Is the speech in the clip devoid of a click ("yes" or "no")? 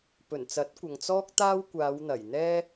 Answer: yes